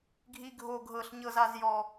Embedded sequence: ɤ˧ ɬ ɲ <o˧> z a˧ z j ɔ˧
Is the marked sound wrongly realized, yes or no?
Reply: yes